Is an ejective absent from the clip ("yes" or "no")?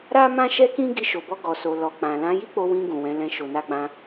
yes